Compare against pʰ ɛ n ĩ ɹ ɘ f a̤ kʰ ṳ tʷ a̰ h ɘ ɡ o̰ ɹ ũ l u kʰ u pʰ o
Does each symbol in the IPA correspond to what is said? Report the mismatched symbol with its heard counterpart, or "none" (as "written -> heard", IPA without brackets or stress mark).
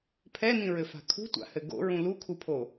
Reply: none